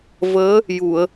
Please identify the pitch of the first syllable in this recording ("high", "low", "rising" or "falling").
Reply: rising